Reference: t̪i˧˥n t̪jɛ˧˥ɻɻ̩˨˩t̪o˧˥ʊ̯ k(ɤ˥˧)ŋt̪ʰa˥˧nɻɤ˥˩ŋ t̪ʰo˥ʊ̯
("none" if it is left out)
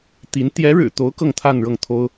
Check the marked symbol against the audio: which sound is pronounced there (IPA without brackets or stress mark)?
ɤ˥˧